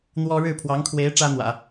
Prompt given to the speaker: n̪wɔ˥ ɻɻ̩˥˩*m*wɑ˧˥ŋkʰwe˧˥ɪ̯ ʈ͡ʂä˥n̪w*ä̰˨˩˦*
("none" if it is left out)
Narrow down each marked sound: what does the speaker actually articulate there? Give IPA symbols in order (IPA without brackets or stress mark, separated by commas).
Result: pʰ, ä̰˨˩˦